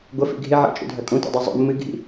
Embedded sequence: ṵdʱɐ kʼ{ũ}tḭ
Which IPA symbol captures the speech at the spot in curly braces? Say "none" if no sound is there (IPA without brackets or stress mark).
ũ